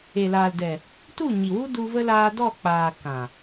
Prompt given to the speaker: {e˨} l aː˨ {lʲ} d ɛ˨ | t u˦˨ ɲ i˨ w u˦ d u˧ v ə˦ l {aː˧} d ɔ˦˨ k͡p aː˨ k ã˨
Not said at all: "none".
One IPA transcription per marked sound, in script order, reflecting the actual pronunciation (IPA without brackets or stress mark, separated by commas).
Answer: e˨, l, aː˧